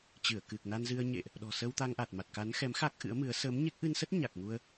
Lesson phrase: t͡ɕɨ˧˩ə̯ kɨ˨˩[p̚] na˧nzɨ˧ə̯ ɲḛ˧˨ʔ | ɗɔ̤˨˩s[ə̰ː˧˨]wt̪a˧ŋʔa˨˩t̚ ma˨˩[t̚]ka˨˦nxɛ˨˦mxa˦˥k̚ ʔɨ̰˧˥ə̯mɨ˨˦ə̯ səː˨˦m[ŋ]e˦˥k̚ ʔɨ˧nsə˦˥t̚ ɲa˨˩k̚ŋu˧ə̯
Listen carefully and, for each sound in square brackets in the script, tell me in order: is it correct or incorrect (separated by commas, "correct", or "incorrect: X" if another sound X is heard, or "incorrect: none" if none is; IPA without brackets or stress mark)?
incorrect: k̚, incorrect: əː˧, correct, incorrect: ɲ